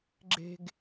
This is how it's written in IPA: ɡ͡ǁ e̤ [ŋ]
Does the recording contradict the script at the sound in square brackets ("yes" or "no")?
yes